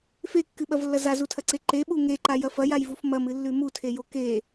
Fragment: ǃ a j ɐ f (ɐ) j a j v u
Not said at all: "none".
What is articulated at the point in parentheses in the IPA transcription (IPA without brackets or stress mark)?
ɐ